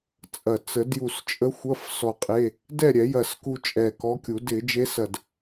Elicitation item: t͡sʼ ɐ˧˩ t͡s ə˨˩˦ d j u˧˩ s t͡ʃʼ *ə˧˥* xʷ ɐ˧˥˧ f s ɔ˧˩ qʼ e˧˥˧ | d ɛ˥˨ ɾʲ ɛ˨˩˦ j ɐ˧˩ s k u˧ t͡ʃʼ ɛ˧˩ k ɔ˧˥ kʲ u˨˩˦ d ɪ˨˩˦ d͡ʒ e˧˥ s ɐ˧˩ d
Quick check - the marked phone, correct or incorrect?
correct